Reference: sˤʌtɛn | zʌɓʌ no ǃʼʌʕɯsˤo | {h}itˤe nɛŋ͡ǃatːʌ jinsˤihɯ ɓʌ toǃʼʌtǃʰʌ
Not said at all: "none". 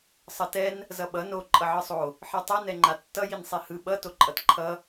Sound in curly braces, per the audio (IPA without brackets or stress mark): ħ